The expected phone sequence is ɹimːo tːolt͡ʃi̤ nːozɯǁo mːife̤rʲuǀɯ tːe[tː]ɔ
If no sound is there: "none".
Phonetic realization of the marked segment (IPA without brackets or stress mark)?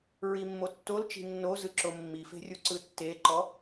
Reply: ǃ